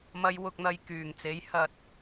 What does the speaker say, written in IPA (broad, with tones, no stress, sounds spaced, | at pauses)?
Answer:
m ɐ˨˧ j w ʊ˨ k̚ n̪ ɐ˨ j k yː˨˩ ŋ t͡s e˨˥ j h ɐ˧ t̚